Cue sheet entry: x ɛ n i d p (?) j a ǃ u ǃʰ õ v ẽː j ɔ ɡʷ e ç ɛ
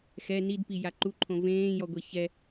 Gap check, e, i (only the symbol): i